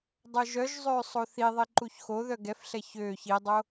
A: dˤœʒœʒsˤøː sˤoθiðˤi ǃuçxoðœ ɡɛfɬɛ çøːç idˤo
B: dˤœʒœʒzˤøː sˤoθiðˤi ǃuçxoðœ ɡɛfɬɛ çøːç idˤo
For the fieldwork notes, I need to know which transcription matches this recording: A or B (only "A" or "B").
B